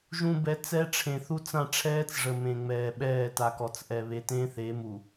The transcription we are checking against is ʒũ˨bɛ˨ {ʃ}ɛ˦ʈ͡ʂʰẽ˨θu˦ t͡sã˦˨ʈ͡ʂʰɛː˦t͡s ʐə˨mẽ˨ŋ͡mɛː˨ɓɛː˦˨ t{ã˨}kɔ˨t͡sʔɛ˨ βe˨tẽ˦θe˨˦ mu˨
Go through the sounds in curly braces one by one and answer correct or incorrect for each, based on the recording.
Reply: incorrect: t͡s, incorrect: a˨

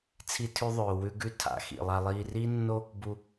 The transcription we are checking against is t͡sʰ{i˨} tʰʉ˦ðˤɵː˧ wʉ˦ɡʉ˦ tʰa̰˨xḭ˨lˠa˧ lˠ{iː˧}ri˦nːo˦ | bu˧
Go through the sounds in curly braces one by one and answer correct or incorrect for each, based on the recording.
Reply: incorrect: i˦, correct

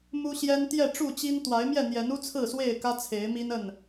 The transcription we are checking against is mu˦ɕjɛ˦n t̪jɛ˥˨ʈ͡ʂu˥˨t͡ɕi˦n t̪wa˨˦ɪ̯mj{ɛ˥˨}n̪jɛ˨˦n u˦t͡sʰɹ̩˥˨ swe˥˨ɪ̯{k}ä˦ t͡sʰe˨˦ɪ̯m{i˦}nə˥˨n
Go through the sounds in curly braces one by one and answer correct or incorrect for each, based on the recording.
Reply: correct, correct, correct

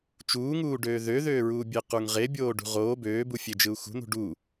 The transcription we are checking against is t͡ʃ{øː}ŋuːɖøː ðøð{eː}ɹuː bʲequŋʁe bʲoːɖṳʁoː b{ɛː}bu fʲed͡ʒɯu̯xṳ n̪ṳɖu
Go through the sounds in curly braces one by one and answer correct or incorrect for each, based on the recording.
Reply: incorrect: uː, incorrect: øː, incorrect: øː

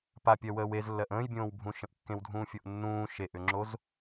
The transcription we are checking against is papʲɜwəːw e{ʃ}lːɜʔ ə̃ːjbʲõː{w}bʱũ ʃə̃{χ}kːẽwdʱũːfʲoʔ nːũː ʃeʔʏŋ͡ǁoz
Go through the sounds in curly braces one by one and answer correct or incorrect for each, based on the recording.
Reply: incorrect: z, correct, incorrect: ʔ

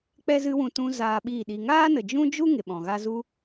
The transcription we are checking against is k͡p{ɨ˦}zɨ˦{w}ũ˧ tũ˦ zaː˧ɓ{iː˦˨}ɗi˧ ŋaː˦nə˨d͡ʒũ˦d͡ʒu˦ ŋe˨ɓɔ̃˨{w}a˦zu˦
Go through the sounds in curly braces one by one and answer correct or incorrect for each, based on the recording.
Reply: incorrect: ɛ˦, correct, correct, incorrect: ɣ

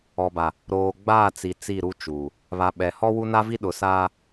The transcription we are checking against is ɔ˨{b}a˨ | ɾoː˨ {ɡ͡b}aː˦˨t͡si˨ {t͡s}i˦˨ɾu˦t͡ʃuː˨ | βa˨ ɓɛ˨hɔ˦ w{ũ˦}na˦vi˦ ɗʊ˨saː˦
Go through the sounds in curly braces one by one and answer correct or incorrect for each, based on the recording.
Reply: correct, correct, correct, incorrect: u˦

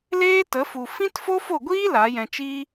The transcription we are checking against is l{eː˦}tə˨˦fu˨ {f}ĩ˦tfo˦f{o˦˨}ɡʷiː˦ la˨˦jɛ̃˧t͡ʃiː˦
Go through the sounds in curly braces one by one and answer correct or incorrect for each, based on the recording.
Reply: correct, correct, correct

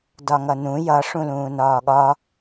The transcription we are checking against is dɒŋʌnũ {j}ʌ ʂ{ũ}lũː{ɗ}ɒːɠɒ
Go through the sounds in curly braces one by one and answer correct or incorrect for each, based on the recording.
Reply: correct, correct, incorrect: n

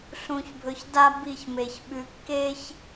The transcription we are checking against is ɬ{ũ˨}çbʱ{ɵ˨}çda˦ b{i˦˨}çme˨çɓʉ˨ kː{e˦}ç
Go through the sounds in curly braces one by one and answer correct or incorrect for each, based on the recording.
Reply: correct, correct, correct, correct

